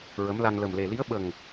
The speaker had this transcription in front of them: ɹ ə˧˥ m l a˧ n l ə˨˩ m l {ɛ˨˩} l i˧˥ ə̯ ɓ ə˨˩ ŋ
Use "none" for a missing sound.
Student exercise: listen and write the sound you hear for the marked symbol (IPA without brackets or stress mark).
e˨˩